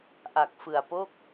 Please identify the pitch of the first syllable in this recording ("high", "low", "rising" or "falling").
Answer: low